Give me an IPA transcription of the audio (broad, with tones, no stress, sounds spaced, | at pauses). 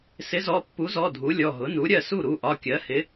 s ɪ˩˥ z ɔ˩˧˩ pː u˩˥ z ɔ˩˧˩ dʱ u˩˥ lʲ ɔ˩˧˩ ɦ ʊ˩˥ n u˩˥ ɾʲ ɜ˥˩ s u˥˩ ɾ u˩˧˩ ʔ ɒ˩˧˩ kʲ ɜ˩˥ h ɪ˩˥